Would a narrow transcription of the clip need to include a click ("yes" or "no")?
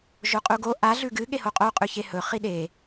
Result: no